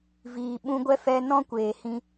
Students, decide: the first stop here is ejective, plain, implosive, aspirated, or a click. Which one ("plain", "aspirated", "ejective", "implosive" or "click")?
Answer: implosive